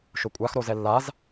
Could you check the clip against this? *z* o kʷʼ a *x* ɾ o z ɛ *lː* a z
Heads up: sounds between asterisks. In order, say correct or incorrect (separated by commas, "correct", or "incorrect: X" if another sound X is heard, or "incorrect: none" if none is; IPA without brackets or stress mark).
incorrect: ʃ, correct, correct